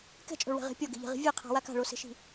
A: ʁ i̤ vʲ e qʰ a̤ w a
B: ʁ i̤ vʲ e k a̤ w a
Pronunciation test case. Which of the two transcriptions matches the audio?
A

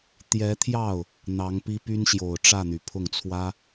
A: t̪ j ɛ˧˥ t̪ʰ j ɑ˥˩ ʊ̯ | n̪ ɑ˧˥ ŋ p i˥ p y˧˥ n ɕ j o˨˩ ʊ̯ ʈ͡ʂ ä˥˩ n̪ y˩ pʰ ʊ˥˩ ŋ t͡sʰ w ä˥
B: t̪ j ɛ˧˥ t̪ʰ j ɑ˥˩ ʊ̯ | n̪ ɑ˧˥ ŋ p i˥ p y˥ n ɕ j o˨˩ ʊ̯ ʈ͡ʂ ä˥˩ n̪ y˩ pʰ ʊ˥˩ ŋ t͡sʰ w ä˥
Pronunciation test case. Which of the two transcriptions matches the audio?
B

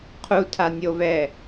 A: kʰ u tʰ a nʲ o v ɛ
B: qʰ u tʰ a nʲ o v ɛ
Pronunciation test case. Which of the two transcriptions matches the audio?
B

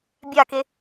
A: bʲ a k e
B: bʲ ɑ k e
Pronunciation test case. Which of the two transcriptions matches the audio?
A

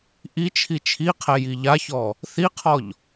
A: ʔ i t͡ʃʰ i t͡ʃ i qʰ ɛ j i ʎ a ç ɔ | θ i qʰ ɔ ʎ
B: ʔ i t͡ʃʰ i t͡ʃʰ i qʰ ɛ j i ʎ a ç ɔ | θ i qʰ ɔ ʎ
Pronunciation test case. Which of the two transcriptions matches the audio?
B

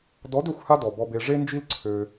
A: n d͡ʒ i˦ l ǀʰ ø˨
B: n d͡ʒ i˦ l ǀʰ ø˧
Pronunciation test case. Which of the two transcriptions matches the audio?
B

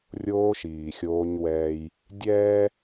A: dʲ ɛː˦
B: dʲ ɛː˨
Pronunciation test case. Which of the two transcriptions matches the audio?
A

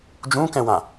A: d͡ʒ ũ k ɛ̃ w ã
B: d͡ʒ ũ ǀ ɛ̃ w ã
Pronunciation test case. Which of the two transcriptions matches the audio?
A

